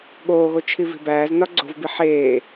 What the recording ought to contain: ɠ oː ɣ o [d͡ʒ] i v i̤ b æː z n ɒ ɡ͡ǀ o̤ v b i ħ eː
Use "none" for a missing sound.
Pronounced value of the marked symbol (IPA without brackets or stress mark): t͡ʃʰ